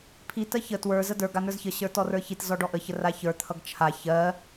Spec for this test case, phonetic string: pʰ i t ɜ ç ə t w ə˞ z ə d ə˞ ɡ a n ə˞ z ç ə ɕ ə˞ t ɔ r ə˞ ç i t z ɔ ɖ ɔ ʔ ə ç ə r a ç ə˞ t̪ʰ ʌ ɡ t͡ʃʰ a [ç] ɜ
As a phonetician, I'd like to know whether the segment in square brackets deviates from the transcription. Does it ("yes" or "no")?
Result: no